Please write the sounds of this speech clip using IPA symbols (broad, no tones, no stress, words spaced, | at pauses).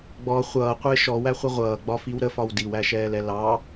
ɡ͡bɔ χʷʌːqʷɪː ʃɔwæχʷə ʁʷʌːɡ͡bɒfiw ɾəfɒw diwæʃɛːlɛ lɑ